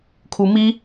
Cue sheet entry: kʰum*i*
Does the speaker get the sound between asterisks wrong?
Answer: no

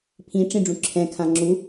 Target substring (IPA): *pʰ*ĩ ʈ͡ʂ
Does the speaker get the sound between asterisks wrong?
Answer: no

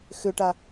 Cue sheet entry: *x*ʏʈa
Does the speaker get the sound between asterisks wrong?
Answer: no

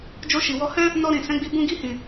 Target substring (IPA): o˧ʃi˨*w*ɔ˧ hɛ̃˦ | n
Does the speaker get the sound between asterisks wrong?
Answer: no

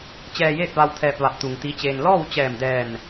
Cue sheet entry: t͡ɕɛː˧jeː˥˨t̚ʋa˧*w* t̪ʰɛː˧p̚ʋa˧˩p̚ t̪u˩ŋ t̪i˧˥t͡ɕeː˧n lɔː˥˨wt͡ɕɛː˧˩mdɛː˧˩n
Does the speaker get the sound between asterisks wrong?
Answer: no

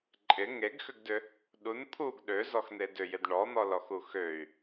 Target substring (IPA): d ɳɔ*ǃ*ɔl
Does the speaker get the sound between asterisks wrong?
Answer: yes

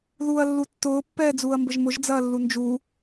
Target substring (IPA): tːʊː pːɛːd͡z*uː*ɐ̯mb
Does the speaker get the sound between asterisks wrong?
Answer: no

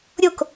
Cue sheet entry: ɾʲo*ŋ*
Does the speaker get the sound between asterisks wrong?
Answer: yes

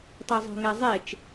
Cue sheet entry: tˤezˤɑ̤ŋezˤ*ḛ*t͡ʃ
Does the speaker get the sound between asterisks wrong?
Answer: yes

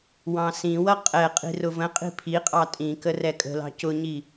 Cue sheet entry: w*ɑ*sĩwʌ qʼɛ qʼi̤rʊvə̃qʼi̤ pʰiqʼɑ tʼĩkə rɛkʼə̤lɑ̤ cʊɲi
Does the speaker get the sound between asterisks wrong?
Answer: yes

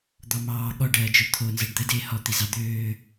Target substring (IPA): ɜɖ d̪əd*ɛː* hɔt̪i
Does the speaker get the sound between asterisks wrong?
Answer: yes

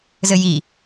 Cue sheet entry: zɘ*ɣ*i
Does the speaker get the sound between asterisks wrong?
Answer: yes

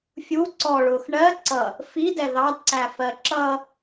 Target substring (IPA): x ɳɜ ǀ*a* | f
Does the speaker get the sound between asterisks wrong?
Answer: yes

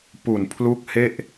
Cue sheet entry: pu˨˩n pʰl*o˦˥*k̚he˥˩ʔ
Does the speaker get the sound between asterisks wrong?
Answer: yes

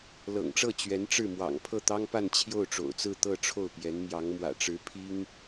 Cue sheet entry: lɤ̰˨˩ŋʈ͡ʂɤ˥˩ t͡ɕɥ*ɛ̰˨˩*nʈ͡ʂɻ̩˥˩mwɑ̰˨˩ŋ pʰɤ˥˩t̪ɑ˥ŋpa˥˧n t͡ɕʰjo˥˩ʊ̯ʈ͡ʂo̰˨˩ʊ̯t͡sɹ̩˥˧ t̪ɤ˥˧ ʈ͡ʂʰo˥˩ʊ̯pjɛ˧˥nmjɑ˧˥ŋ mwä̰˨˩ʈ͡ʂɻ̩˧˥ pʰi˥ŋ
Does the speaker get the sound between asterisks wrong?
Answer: yes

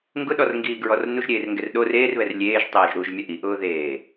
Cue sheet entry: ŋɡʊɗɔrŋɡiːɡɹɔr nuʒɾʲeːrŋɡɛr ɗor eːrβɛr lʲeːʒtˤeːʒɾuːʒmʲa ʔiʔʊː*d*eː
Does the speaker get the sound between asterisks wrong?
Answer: yes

